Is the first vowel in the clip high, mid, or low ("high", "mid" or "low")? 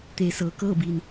mid